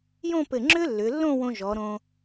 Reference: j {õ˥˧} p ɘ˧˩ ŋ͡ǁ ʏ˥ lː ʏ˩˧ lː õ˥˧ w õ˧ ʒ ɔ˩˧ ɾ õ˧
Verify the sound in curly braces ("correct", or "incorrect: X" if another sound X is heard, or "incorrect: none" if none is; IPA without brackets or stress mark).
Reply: correct